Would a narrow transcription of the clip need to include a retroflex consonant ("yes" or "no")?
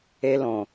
no